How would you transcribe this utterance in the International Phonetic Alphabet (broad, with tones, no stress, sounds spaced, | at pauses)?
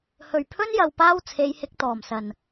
h ɵ˨˩ ɥ pʰ ɵ˥ n j ɐ˨ w p aː˥ w t͡sʰ e˨˧ j h ɪ˨˥ k̚ t̪ ɔː˨˩ m s ɐ˨˩ n